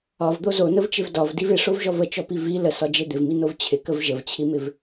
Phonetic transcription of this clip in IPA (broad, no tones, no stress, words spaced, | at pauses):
ɒvd̪o zonəvt͡ʃɪv dɒvdiv ɪʂovʒɔv ət͡ʃɔpi vi ləsɒd͡ʒe d̪ɪvminov t͡ɕʰɪkəv ʒəvt͡ɕʰimɪv